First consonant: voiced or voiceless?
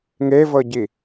voiced